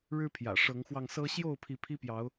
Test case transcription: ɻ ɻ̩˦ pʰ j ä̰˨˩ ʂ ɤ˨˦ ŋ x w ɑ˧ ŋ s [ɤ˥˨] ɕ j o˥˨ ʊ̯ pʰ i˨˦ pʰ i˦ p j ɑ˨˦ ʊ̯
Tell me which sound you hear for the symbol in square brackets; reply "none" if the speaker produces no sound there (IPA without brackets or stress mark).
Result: ɤ˦